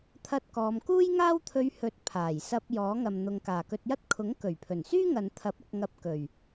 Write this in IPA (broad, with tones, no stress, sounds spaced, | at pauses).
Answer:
t̪ʰ ɐ˥ t̚ k ɔː˧ m k uː˥ j ŋ aː˥ w t̪ʰ ɵ˧ ɥ h ɵ˨˥ t̚ pʰ aː˨˩ j s ɐ˧ p̚ j ɔː˨˥ ŋ ɐ˨ m n̪ ʊ˨ ŋ k aː˨˩ k ɵ˧ t̚ j ɐ˥ t̚ kʰ ʊ˨˥ ŋ k ɵ˨˩ ɥ pʰ ɵ˨˩ n s yː˥ ŋ ɐ˨ n t̪ʰ ɐ˨˥ p̚ ɐ˧ k̚ ŋ ɐ˧ p̚ k ɵ˨˩ ɥ